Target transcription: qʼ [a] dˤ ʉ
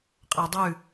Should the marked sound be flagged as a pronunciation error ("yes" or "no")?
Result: yes